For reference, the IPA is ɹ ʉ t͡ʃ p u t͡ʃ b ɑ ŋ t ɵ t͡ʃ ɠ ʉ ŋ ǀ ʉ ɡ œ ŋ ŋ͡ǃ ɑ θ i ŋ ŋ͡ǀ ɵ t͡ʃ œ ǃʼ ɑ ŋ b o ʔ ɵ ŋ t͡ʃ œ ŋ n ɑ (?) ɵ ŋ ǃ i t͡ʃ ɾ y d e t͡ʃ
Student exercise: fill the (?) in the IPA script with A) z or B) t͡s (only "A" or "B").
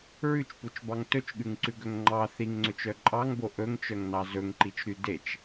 A